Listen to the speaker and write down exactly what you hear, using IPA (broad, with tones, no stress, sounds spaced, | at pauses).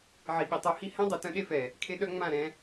ʕ i˨ ɓ i˨ tˤ o˧ h i˦ h ɛ̃˦ dˤ ɛ˨ t œ̃˦ ɗ e˦ f ɛ˨ | kʰ e˧ ɗ œ˧ ŋ͡m ã˦˨ ɾ ɛ̃˧